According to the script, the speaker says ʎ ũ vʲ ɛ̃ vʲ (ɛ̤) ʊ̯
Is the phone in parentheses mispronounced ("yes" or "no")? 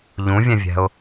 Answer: no